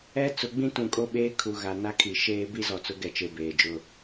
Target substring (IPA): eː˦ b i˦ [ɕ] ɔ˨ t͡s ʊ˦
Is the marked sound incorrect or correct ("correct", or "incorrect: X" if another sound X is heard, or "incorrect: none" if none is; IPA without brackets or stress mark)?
incorrect: z